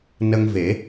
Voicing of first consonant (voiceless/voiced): voiced